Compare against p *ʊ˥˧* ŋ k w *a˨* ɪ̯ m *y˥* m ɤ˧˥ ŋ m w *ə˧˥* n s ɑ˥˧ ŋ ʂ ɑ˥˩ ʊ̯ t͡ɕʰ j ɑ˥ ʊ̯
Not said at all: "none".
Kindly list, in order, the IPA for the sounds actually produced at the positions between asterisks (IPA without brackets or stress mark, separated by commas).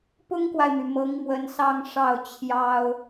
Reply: ʊ˥, a˨, y˩, ə˧˥